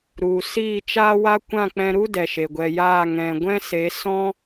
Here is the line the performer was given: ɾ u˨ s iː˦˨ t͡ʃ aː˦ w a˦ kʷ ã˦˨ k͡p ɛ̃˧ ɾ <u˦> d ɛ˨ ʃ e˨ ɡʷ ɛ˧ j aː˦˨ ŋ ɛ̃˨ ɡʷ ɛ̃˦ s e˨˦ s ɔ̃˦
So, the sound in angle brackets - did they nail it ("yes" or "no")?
yes